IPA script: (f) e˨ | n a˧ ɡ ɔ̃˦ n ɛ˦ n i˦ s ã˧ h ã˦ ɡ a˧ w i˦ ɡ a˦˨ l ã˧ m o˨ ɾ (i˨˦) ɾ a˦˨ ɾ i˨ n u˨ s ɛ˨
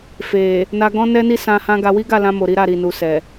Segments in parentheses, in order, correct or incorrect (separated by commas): correct, correct